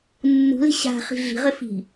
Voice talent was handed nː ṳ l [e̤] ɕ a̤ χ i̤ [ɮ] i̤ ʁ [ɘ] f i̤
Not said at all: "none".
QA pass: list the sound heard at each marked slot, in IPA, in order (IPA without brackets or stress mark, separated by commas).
e̤, ɮ, ɘ